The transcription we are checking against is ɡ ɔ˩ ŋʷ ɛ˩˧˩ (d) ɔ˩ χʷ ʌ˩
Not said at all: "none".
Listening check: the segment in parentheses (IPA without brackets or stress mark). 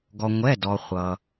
d